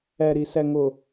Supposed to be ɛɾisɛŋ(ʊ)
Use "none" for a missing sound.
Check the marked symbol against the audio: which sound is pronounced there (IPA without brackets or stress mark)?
ʊ